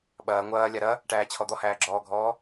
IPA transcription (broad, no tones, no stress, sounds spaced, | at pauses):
ɓ ɐː ŋʷ ɐː lʲ a ɾ ɐ | ʈ æː t͡ɕʰ ɔ d̪ ɔ h æː ɡ͡ǁ ɔː ɡʱ ɔː